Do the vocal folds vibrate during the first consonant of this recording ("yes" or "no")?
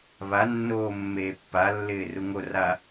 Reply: yes